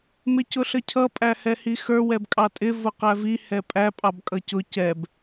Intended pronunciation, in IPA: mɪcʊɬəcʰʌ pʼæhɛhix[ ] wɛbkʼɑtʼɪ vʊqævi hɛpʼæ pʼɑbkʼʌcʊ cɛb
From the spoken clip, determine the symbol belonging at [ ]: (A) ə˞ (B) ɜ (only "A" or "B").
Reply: A